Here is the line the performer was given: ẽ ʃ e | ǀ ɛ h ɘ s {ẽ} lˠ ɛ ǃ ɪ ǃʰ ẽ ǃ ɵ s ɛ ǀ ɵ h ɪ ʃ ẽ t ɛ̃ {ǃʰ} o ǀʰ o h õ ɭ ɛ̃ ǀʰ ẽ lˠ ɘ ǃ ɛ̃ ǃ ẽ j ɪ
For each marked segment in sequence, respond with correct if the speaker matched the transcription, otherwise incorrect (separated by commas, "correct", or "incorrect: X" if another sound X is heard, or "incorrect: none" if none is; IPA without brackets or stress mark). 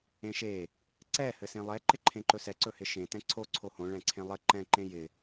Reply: correct, incorrect: ǀʰ